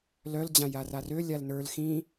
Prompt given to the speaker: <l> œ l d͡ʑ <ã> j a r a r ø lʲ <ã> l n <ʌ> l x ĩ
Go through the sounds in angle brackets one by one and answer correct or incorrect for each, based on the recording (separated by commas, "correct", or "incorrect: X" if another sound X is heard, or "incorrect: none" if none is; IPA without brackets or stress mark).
correct, correct, incorrect: a, incorrect: ə˞